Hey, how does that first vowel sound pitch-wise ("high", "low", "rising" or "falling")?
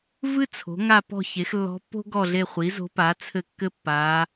high